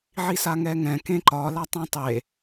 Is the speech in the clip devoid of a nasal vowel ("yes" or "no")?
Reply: no